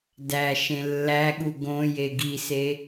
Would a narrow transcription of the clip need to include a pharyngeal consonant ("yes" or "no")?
no